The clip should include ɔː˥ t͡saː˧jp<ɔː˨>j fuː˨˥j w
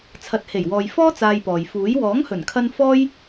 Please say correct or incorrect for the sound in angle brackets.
correct